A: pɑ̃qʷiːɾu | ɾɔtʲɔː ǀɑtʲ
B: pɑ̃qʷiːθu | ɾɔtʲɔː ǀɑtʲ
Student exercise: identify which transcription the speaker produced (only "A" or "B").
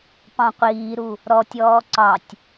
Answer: A